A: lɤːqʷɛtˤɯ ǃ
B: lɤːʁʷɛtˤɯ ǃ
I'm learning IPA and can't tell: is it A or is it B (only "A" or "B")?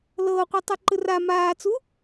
A